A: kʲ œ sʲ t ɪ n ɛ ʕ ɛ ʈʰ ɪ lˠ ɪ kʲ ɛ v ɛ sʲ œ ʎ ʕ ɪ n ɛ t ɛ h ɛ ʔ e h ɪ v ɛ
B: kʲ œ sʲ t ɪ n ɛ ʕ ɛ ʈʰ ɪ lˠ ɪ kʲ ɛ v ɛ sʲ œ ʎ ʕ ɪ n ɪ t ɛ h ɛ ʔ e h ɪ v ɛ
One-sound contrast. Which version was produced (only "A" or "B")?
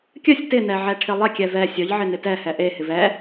B